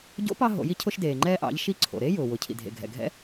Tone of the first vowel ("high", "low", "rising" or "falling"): rising